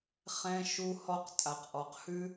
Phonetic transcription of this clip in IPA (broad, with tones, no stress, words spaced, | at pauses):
χɛ̃˦ ʃu˦hɔ˦q tʼa˨qʔɔ˨qhʉ˦